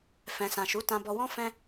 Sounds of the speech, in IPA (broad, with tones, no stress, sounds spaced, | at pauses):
f ɛ̃˨ s ã˨ ʃ u˨˦ t ã˧ b ɔ˧ w ɔ̃˦ f ɛ̃˧